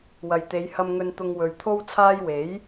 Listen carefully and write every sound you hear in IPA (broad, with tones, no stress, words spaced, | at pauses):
wɐ˨jt̪e˨˧j hɐ˨mŋɵ˨nt̪ʊ˨ŋ wɵ˨ɥt̪ʰo˥wt͡sʰaː˥j we˨˥j